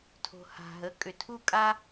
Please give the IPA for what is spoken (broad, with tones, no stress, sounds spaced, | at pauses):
tʰ o̤˩ h a̤˩ ɦ ə˩˥ kʼ ʏ˩ tʰ u˥ kʼ a˥